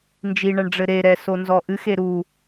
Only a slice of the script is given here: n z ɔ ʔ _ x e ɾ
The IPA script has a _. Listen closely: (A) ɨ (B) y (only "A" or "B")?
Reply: A